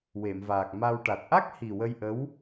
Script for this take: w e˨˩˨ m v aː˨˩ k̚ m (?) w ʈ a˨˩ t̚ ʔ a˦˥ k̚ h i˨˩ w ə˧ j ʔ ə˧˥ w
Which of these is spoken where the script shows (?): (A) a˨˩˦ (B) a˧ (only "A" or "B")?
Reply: B